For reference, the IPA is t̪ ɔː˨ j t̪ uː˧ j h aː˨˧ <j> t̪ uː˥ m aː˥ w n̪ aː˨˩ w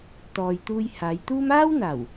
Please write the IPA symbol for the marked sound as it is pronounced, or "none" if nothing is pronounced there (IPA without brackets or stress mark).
j